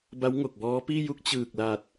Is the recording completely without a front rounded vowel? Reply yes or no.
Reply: yes